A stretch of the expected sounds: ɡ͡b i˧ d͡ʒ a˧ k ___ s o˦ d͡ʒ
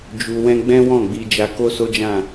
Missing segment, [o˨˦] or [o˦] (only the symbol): o˦